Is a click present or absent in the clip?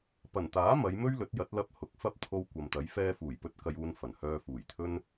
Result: absent